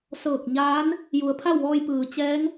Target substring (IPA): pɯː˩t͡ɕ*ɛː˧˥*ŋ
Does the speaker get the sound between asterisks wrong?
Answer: no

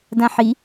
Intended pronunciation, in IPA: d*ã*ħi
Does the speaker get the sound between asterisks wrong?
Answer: no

